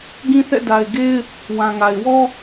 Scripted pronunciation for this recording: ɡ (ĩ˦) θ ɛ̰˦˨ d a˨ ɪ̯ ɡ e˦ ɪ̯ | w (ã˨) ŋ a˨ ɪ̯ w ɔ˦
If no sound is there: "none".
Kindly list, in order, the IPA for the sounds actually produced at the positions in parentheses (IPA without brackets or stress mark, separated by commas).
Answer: ĩ˦, ã˨